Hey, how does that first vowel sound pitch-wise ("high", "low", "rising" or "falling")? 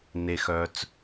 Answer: low